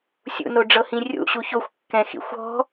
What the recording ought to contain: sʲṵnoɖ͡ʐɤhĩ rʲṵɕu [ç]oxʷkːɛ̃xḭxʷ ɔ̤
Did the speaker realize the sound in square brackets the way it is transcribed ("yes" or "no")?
yes